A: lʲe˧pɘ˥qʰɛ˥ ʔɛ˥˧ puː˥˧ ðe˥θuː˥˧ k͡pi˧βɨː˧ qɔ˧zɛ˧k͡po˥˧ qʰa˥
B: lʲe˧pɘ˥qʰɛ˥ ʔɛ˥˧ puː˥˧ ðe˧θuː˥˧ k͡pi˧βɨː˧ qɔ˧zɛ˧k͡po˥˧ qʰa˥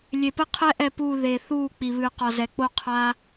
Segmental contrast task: B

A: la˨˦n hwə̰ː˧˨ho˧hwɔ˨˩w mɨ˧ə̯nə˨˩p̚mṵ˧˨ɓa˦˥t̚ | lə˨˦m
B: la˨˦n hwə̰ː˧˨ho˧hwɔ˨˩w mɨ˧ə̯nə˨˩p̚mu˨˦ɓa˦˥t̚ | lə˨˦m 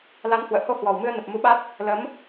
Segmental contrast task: B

